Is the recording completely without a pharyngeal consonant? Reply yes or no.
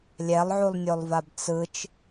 no